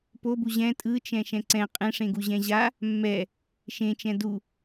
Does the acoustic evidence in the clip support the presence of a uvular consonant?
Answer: yes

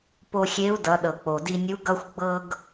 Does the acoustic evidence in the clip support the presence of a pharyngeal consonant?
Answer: no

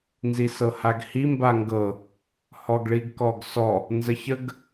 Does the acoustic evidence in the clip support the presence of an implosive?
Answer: no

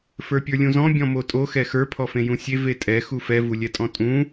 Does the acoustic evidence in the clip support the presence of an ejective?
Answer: yes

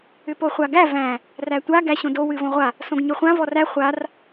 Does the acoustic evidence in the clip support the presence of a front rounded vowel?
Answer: yes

